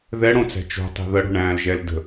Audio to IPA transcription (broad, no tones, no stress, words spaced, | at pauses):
ðɛɽõt͡sæ̤ t͡ʃo̤tˤi̤ ðəɽo̤ɳæ̃ːlʒɛl də̤